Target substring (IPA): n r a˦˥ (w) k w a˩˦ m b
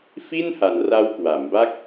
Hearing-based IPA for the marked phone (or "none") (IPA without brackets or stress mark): w